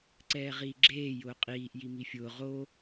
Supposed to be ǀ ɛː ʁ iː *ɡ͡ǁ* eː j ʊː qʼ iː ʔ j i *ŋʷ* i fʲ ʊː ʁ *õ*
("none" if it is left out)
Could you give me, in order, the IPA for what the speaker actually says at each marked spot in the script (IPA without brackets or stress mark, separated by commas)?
ɡ͡ǁ, m, o